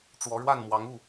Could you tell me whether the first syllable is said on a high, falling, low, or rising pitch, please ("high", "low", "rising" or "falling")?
rising